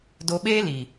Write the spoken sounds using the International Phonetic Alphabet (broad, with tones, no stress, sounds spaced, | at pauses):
d o˧ ɓ eː˦ l i˨